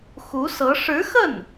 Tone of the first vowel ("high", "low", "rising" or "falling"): rising